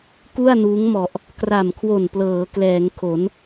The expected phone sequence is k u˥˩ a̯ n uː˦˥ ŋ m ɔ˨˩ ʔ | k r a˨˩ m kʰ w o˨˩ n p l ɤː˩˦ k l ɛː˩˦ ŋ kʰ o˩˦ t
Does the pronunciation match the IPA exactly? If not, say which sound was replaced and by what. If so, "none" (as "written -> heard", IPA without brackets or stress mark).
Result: t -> n